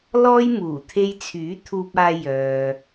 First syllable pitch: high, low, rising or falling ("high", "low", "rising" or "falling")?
high